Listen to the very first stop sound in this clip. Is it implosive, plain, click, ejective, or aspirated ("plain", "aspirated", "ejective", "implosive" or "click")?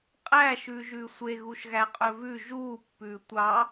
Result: ejective